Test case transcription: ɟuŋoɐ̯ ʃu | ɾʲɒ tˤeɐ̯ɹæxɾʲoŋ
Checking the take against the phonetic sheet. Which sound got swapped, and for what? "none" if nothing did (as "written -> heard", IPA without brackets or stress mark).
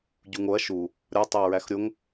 none